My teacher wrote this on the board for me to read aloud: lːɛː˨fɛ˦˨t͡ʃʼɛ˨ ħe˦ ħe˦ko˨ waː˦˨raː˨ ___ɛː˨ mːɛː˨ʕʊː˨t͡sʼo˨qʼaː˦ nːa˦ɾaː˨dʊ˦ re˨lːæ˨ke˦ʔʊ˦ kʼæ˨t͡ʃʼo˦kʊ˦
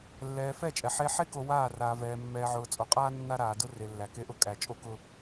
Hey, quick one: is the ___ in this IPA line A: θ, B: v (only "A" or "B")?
B